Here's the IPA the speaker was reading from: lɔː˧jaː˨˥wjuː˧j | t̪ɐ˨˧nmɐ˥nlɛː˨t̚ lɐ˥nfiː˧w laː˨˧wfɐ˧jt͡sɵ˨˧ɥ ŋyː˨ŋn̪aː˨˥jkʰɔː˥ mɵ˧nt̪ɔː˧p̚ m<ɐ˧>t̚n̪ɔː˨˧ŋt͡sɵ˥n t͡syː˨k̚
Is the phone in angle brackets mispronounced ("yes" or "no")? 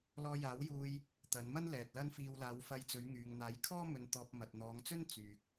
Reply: yes